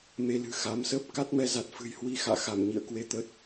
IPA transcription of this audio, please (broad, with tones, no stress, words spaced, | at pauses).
me˧lɨ̤˨˩ xa˨˦m səː˦˥p̚ ka˦˥t̚mɛ˧za˨˩t̚ fɨ̤˨˩jhwi˧ xa̰ː˧˨ xa˧˩m ɲḭ˧˨ə̯kwe˧ t̪ə˦˥t̚